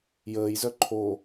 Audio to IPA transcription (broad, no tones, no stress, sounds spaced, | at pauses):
j əː j z œ ǃʰ o